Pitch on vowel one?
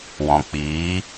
low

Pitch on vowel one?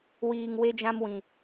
low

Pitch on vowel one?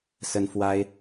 high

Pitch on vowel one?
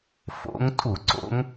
rising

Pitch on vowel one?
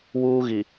high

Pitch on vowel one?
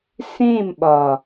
falling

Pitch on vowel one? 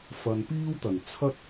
low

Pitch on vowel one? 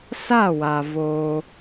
falling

